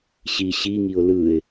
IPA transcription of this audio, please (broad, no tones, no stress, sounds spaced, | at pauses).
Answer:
ɕ i ɕ i ŋ i ʊ̯ l ɯ ɪ̯